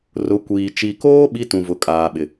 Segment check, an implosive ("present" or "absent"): present